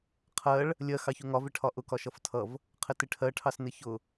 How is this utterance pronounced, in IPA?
qʰ ɜ ɭ | lʲ ɜ x ɑ ç u ŋ ɒ v ɪ ʈʰ ɒ ʔ ʊ k ɒ ʃ ʌ f tʰ ʌ v | qʰ ɪ t ɪ ʈʰ ɜ ʈʰ ɑ s n ɪ ç ʊ

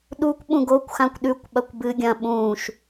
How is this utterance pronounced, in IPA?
ɗ u kʷ ɓ ũ ɡ o kʷ x ã kʷ ɗ ʉ kʷ ɓ ɐ kʷ b ɨ ɡʲ ɐ̃ ɓ ũː ʃ

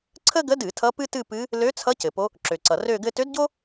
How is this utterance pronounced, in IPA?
ǀʰ ə˥ ɡ ə˧˥ d ɨ˧˩˧ tʰ ʌ˧˥ p ɨ˥ t ɨ˥˧ p ɨ˧˥ | l ø˧˥ t͡sʰ ʌ˧˥ c ɘ˩ p o˧˥ | ǁ ø˩ ǀ ʌ˩ r ø˥˧ ɡ ɘ˥ t ø˧˥ d ɟ o˥

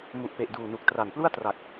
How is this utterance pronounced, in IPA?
m u˨˩ ʔ p e˨˩ ʔ d uː˨˩ n u˨˩ k̚ t r a˨˩ n p l u˥˩ a̯ t r a˨˩ k̚

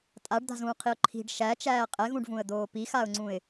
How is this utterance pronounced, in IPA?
tʼ a ɖ d̪ a̤ z ũː qʰ i ʊ̯ ǃʰ i̤ ɖ ʃ æ t͡ʃ æː qʼ ɛ ɣ ũ ɖ v ũ ə̯ d̪ oː p i x a ʊ̯ ŋ͡ǀ ũ ɪ̯

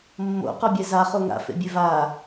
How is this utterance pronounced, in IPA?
mː o̰ q ɔ bʲ ɛ z a χ o ŋ a̰ f ḛ bʲ e v a

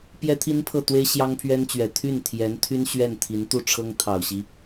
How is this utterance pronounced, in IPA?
p j ɛ˥ t̪ʰ i˥ n pʰ ɤ˥˩ t̪ w e˥ ɪ̯ ɕ j ɑ˥ ŋ pʰ ɥ ɛ˥ n t͡ɕ ɥ ɛ˨˩ t̪ʰ y˥˩ n t̪ʰ j ɛ˧˥ n t̪ʰ y˥ n ɕ ɥ ɛ˥˩ n t̪ʰ i˧˥ n t̪ u˥˩ ʈ͡ʂʰ ɤ˥ ŋ t̪ʰ ɑ˨˩ ʊ̯ ɕ i˦

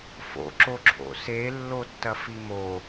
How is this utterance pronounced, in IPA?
f o̰ ǁ o ǁʰ o̰ s e lː o tː ɐ f i m o

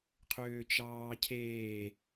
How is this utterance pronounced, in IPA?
qʰ øː t͡ʃ ɑː cʰ eː

